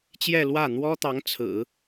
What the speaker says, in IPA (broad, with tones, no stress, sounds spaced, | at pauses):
t͡ɕ j ɛ˥˧ l w ä˥˩ n̪ w ɔ˥ t̪ ɑ˧˥ ŋ t͡sʰ ɹ̩˨˩˦